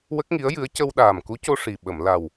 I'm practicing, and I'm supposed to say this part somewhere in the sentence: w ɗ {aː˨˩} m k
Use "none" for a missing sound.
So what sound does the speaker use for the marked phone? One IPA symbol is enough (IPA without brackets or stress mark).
aː˨˩